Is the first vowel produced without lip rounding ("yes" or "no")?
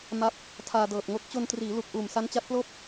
yes